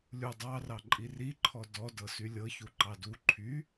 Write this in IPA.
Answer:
lʲ u dˤ ɑ r ɑ ǃʼ i r i ǃʰ ɔ d ɔ d ɤ s y lʲ ɤ ç u ǃ ɑ d u ǃʰ y

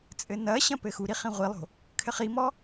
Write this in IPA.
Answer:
t͡sʼ ɘ n ɐ ɕ ɐ̃ p ɘ x u ɾ i χ ĩ ʁʷ i lˠ o̤ | kʰ ɘ χ i m ɔ

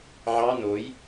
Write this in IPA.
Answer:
ʕ ɑ n o j

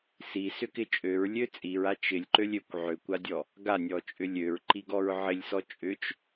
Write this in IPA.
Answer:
s i s ʏ k ɪ t͡ʃʼ ø ɹ lʲ ø t͡sʼ i ɹ a t͡ʃ ɪ lʲ ǃ ø lʲ ø kʷ ʕ ø kʷ a dʲ ɔ | ɡ a nʲ ɔ t͡ʃʼ ʏ lʲ ø ɹ ǃ i ɡ ɔ ɹ ʕ ɪ lʲ s ɔ t͡ʃʼ ʏ t͡ʃ

